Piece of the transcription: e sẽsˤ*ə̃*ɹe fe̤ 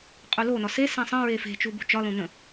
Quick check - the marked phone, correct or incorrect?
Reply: correct